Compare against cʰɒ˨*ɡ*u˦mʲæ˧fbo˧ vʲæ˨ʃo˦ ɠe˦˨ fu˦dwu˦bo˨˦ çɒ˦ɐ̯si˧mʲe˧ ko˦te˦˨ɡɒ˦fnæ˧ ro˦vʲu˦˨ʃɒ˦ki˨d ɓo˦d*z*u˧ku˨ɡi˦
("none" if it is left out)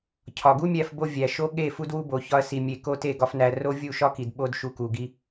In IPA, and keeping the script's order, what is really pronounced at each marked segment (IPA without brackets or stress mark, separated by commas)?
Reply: ɡ, ʃ